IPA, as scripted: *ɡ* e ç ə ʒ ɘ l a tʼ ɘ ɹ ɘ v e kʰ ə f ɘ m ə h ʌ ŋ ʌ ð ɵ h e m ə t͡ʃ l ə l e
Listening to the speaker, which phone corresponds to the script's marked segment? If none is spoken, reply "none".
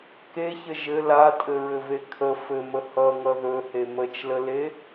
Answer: k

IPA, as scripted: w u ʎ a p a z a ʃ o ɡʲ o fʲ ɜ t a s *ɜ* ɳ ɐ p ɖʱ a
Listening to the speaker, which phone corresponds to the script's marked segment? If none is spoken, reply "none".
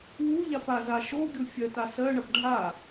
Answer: ɜ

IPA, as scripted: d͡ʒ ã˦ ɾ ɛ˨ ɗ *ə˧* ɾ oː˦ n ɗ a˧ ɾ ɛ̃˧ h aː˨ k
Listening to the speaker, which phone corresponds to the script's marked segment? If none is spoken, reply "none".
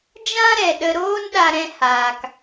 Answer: ə˧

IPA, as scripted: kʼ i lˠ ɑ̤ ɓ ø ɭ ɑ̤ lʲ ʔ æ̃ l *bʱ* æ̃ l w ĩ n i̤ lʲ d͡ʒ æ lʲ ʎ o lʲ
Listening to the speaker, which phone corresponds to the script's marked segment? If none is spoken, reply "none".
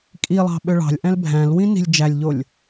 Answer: bʱ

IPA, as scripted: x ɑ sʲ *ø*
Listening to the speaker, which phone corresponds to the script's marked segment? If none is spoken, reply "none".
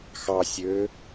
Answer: ø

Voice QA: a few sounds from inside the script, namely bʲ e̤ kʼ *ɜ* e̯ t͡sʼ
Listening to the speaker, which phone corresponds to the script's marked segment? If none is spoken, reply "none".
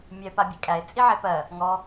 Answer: æ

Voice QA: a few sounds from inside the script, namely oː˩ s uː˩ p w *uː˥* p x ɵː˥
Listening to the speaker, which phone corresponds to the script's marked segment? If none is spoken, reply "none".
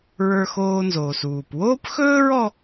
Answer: oː˥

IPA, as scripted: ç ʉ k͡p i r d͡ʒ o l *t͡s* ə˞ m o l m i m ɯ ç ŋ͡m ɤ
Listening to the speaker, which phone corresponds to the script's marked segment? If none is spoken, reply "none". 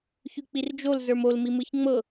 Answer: z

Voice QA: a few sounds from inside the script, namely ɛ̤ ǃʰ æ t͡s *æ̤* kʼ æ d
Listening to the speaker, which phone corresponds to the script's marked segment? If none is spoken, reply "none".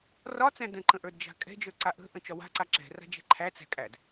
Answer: æ̤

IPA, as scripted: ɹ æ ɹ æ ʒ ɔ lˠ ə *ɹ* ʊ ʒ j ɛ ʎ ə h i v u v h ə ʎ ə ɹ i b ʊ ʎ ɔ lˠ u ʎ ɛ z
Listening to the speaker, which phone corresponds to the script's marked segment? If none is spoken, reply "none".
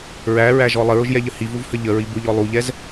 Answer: ɹ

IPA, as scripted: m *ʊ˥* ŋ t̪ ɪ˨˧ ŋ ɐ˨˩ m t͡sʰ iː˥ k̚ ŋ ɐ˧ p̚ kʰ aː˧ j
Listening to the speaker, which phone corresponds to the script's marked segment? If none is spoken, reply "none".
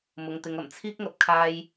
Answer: ʊ˨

